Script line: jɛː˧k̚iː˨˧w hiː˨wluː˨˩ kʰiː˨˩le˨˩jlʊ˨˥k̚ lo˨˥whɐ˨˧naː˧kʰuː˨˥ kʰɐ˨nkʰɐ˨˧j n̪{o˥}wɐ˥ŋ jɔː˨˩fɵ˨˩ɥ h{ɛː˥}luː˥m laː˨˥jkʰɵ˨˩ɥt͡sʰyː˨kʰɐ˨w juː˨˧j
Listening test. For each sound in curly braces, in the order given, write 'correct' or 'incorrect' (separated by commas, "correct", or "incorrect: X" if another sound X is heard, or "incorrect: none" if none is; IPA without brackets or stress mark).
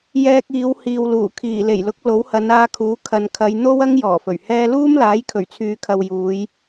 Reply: correct, incorrect: ɛː˧